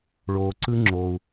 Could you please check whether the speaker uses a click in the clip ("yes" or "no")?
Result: yes